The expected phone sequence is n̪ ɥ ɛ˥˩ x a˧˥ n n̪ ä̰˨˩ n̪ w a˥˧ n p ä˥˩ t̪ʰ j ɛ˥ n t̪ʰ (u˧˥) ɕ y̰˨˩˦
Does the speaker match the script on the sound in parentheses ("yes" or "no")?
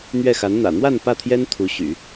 yes